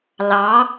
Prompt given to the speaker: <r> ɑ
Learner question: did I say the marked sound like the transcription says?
no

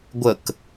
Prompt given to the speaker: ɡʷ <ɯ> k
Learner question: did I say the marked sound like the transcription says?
no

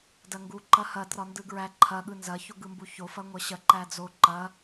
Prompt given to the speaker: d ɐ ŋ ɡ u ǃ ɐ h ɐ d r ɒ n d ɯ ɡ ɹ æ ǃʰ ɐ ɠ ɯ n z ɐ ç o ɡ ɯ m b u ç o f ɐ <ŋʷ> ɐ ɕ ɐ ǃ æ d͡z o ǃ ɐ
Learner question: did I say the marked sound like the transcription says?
yes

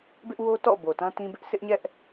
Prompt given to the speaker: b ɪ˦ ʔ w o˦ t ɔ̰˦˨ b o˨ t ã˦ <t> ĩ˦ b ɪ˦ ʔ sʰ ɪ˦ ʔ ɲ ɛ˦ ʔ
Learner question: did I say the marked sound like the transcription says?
yes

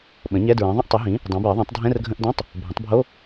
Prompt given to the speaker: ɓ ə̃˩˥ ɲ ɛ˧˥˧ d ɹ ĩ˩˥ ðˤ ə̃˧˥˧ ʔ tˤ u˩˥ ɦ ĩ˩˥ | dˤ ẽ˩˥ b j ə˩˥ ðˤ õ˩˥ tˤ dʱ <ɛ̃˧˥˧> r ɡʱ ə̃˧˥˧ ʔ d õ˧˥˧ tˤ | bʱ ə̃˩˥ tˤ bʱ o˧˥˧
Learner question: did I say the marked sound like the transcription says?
yes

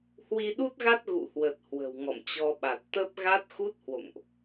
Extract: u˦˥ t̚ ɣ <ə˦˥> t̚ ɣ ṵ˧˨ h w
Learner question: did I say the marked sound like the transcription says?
no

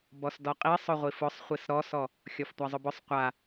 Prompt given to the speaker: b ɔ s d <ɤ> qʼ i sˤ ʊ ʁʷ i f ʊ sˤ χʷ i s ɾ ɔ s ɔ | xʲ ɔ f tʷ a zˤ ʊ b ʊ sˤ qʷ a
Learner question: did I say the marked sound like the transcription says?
no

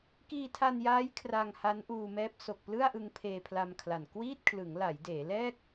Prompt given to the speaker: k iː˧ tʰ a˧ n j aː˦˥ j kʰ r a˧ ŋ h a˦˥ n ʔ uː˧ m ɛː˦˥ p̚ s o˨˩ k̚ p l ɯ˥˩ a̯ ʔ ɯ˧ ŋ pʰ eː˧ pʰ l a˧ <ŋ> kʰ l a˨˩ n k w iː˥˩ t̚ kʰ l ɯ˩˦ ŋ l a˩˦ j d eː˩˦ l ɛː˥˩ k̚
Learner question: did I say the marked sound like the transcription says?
no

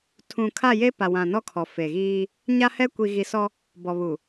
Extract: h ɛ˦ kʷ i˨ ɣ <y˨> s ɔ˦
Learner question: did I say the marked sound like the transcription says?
no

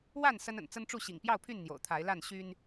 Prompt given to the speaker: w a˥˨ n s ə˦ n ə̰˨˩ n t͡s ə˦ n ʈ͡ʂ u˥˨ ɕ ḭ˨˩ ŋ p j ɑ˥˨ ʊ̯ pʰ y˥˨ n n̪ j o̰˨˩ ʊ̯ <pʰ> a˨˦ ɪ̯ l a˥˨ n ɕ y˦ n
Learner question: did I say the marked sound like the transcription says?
no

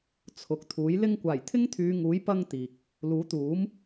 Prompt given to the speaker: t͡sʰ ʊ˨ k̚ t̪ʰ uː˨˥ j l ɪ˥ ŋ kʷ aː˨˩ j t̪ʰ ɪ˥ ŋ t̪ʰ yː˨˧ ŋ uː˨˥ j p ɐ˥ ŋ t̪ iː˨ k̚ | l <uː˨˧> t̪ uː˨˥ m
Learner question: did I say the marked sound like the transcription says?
no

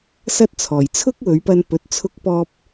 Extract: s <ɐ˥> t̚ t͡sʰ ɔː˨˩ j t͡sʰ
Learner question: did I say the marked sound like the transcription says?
yes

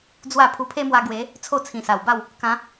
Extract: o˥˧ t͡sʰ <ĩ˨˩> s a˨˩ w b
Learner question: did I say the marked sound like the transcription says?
yes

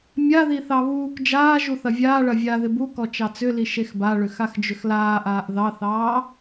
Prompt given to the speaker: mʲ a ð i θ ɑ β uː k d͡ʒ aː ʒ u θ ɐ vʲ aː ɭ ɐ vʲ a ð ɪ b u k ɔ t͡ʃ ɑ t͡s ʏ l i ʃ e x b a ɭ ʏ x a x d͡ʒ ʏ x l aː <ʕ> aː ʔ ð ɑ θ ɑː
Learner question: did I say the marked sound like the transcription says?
no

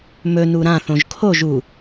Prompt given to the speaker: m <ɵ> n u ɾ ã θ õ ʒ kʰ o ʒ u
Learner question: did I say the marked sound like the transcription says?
yes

